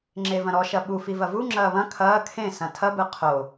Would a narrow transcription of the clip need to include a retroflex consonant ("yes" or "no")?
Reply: no